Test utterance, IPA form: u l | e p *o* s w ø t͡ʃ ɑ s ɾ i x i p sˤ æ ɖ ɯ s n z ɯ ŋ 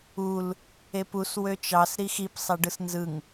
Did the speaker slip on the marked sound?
yes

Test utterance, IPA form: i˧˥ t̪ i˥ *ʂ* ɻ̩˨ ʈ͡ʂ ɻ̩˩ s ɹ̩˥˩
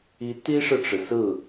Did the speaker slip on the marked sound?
no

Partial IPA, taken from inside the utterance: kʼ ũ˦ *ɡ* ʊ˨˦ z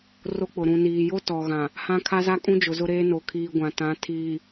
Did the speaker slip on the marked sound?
yes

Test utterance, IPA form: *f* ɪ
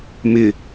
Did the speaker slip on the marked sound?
yes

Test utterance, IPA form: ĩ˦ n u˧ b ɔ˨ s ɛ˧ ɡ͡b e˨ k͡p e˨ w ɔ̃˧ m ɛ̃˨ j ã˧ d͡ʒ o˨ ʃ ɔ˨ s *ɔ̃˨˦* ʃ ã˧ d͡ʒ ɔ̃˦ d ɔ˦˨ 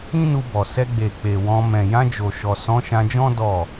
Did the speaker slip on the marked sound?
no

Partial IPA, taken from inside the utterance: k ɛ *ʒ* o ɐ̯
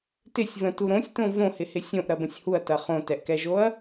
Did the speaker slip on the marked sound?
no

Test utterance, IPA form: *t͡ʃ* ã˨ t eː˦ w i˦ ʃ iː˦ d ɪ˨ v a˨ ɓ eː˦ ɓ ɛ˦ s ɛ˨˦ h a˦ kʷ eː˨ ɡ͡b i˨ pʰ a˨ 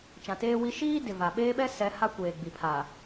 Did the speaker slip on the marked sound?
no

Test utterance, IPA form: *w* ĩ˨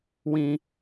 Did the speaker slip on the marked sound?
no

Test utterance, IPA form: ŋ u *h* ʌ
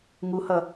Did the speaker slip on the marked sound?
no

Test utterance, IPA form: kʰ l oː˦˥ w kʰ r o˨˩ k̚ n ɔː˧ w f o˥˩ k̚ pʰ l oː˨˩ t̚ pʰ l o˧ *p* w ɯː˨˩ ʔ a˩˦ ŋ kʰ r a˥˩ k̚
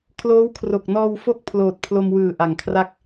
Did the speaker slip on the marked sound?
yes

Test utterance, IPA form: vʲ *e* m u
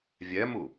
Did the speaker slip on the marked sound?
yes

